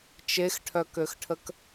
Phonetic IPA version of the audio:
t͡ʃ e x ʈʰ œ k ø x ʈʰ ə k

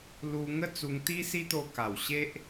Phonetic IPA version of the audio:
l u˧ ŋ ə˥˧ t͡s u˧ ŋ t̪ i˦ s i˦ t̪ o˧ k a˨˩ w ɕ e˦ ʔ

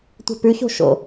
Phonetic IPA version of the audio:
tʷ ɛ̤ p ʉ ç o̤ ʃ o̰

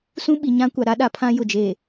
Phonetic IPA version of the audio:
s ũ˦ ɓ i˨ ɲ ã˦ kʷ a˨ ɾ a˦ ɗ a˨ pʰ ã˦ j ʊ˨ d͡ʒ e˨

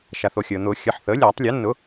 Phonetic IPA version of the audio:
ʃ a˩ θ o˩ xʲ əː˩ n̪ ʊː˨˩˦ xʲ ə˩˧˩ ħ θ əː˩˥ lʲ aː˨˩˦ tˤ lʲ o˩˥ nː ʊ˩˥

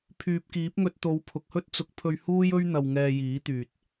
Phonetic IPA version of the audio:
pʰ yː˨ p̚ k iː˨˥ p̚ ŋ ɵ˧ t̚ t̪ o˨˧ w pʰ ʊ˨ k̚ h ɵ˥ t̚ t͡s ʊ˨˥ k̚ pʰ ɵ˧ ɥ h uː˥ j ɵ˥ ɥ n̪ ɐ˧ w ŋ ɛː˧ j iː˨˥ t̪ yː˨ t̚

